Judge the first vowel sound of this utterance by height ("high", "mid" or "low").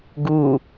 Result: high